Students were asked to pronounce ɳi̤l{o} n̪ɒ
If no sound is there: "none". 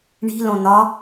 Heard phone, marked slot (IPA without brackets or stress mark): õ